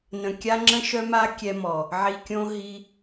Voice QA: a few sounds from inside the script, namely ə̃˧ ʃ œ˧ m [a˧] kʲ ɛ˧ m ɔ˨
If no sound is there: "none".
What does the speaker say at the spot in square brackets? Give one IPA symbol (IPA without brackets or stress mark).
a˧